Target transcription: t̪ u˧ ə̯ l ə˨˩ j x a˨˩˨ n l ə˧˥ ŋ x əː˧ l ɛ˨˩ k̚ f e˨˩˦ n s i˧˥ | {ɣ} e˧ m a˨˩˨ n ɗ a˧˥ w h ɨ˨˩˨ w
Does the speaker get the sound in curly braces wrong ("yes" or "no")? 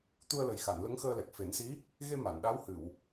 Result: no